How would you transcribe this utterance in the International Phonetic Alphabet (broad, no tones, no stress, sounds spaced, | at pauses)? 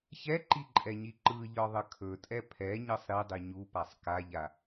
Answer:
ç ɛ ǃ i ǃʼ ɛ ɲ i ǃ ɯ ʎ ɒ ðˤ ə kʰ ɵ tʼ ɛ pʰ ɛ ɲ ɤ sˤ ɾ i dˤ i ɲ u p a sˤ k a ʎ a